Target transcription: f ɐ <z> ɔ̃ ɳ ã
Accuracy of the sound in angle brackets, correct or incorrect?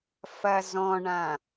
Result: correct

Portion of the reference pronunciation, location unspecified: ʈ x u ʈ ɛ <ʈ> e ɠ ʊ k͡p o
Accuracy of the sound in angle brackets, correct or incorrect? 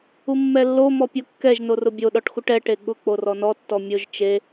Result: correct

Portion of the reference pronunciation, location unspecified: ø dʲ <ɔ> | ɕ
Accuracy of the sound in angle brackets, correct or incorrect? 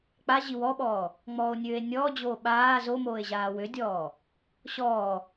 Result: incorrect: ɔː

